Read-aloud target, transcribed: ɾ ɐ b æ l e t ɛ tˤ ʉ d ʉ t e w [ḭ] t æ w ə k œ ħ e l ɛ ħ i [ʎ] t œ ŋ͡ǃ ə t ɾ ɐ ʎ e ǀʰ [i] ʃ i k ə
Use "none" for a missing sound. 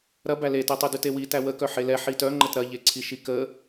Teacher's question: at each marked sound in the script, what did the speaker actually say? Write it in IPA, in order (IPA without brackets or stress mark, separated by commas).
i, none, i